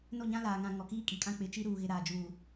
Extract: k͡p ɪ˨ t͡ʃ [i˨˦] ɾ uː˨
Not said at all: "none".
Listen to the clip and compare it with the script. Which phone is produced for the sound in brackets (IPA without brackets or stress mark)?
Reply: i˦